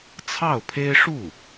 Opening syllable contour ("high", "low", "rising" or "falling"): falling